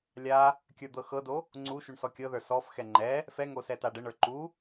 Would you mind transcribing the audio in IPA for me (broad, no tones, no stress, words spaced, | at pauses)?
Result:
lʲa | kʲə˞d̪ɤxɤdo | ŋ͡ǀuʃuɳ sɔkʲɤðə˞ sɔfxɛ ŋ͡ǃɛ | fɛŋo sɛtaɖəɳə˞ ǃu